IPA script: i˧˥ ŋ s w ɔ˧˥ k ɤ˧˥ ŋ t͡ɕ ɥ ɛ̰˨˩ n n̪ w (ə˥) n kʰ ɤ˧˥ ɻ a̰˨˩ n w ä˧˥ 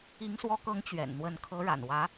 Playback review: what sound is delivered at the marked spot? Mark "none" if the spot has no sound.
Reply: ə˧˥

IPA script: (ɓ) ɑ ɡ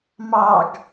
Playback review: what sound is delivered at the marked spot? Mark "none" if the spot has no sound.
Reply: m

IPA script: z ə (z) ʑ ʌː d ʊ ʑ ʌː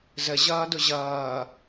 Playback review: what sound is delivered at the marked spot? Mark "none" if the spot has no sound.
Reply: none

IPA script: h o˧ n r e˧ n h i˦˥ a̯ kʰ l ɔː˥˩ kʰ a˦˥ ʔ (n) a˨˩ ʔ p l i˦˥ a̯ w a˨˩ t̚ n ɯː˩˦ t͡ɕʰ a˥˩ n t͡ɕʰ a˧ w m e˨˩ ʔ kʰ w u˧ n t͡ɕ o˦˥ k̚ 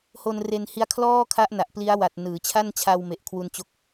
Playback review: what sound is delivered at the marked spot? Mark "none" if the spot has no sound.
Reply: n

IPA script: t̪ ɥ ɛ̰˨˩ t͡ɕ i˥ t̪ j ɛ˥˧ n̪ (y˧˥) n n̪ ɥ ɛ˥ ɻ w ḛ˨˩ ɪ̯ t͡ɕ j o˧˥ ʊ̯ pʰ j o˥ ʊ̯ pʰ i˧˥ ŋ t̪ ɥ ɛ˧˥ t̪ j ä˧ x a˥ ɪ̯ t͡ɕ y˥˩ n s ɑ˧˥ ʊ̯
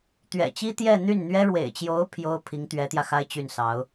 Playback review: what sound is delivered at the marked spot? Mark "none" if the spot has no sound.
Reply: y˥˩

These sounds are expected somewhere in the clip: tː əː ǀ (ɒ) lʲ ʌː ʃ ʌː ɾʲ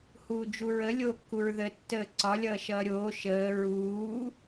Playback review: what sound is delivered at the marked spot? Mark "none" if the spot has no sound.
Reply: ɒ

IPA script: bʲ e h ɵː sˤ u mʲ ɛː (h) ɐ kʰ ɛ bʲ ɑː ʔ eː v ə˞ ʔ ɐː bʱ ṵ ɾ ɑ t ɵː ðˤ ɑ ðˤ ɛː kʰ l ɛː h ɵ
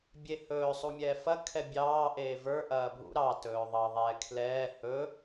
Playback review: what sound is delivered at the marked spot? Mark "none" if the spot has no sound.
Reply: f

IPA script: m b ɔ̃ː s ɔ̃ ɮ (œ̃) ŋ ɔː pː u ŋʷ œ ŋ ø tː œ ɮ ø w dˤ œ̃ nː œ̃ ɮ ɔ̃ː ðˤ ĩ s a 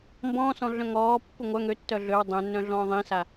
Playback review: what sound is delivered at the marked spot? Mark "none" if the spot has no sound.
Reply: œ̃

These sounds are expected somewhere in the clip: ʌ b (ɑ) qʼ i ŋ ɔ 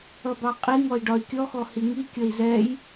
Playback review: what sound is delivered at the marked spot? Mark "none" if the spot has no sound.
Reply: ɑ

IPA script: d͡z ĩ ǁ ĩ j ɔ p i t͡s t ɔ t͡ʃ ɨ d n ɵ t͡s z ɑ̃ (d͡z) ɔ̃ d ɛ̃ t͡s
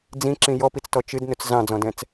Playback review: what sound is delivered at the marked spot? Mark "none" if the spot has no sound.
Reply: d͡z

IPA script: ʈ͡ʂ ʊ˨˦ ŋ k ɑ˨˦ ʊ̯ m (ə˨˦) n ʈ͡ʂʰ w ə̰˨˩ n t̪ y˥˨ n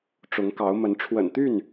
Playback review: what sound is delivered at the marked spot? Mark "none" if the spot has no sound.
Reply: ə˨˦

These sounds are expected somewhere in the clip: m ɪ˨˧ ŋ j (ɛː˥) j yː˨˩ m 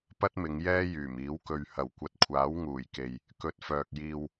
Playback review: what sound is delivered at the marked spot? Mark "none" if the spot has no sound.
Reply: ɛː˥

